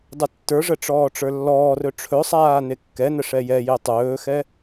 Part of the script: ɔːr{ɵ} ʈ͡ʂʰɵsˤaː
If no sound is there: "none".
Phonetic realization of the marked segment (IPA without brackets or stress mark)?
ɵ